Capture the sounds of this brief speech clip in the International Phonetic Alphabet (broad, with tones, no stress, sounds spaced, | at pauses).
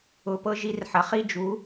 ʊ˧˥˧ p ɤ˥ ʒ i˧˥˧ r ħ ɐ˨˥ χ i˥ d͡ʒ u˨˥